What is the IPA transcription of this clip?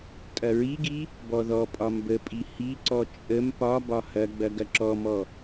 tʼ ɐ ɹ i ɡ i | b ɔ ð ɔ pʼ ɒ m b ə pʼ i h i ǀ ɔ t͡ʃʼ ə m p ɒ b ɒ h ɐ ɡ͡b ɐ ɡ ɐ ǁ ɔ m ɔ

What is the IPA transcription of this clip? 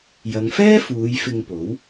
j ɐ˨˧ ŋ f ɛː˥ f uː˨˧ j f ɪ˧ ŋ p o˨˥ w

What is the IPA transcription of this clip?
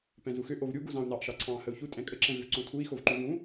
p ɛ̃ z u x ʏ ʔ o v ɾʲ u ɡ u z ɑ̃ u̯ n ɑ ʔ ʃ ɑ ǀʰ ɑ̃ː h ə u̯ ç u tʼ ɛ̃ kʼ ə ǁ ɛ̃ v ʏ v ǀ õ tʰ u i̯ x o v ǃ u v ũ

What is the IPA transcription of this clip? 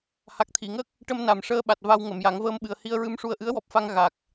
h a˨˩ k̚ t̪ʰ i˨˩˨ ŋ ə˦˥ k̚ | ʈ ə˧ m n a˨˩ m ʂ əː˧ ɓ a˨˩ t̚ v a˧ w ŋ ə˨˩˨ m j a˨˩˦ ŋ v əː˧ m ɓ ɨ˨˩ ə̯ h i˧ ə̯ ɹ ɨ˧ m ʂ u˧ ə̯ ʔ ɨ˧˥ ə̯ w ɔ˨˩ p̚ f a˧ ŋ ɣ a˨˩ k̚

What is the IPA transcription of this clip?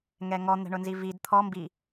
ŋ ɛ ŋ ɔ n̪ ɛ̤ ɳ ʊ n z i v i d t̪ʰ ɔ m b i

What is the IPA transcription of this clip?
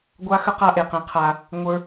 ɡʷ a˦ x ə˦ q a˦ ʔ e˨ q ẽ˧ qʰ a˧ | ŋʷ ə˞˦

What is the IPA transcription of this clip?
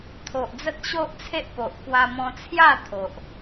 t̪ʰ o˨ ʔ d͡z ə˦ t̚ ɕ o˦ ʔ t͡sʰ e˦ ʔ p o˨ ʔ k w a˧ m ɔ̃˧ t͡sʰ j a˥˧ t̪ʰ o˨ ʔ

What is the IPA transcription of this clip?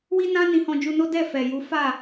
w i˦ n ã˦ n ĩ˧ h ɔ̃˧ d͡ʒ u˧ n o˦ d ɛ˦˨ f ɛ˨ j u˨˦ f a˦˨

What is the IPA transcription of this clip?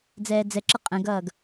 d͡z ɛː d͡z ɛ ǁ ʌ qʼ ə̃ ɡ ʌː ɡ

